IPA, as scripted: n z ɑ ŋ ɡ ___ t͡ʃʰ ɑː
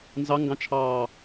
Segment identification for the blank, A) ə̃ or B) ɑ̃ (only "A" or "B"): B